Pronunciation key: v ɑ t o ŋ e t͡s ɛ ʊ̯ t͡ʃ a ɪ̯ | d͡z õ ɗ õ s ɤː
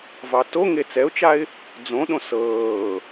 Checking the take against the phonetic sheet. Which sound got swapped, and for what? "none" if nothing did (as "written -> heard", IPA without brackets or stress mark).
none